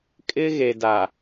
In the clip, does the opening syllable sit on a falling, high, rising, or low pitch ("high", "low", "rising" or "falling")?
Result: high